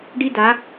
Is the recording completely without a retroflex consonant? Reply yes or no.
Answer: no